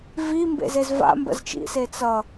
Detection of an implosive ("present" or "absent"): absent